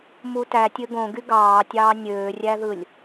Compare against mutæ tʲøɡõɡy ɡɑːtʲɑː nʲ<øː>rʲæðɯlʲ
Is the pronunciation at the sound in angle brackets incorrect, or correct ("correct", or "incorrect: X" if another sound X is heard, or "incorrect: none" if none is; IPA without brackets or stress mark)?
correct